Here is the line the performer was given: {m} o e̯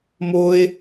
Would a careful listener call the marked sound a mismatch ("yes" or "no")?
no